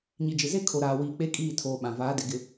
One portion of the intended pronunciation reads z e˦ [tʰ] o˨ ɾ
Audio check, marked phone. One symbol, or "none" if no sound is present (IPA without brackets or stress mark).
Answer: kʰ